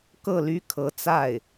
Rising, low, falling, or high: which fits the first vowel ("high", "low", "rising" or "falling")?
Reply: falling